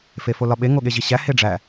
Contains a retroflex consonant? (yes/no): yes